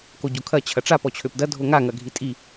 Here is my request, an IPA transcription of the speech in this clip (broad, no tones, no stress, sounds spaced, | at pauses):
k o ɟ o kʰ ɐ t͡ɕʰ ɐ ʈ͡ʂ a p ɔ t͡ɕʰ ø p d ɐ dʱ o ŋ a ŋ ɐ ɡʱ i tʼ i